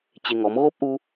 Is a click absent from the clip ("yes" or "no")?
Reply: yes